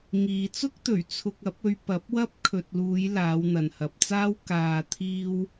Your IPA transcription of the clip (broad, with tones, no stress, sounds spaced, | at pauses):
ŋ iː˨ t͡s ʊ˥ k̚ t̪ ɵ˨˩ ɥ t͡sʰ ʊ˧ k̚ ɐ˨˥ p̚ ɵ˧ ɥ p ɐ˨˥ p̚ w ɐ˥ p̚ kʰ ɵ˨ t̚ l uː˨˧ j l aː˨˧ w n̪ ɐ˨ n h ɐ˨ p̚ t͡s aː˥ w k aː˨ t̪ʰ iː˧ w